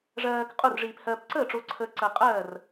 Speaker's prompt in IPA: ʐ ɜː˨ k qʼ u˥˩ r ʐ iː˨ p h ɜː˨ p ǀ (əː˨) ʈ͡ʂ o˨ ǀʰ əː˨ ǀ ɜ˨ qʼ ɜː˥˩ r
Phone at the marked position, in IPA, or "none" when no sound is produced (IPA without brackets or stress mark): əː˥˩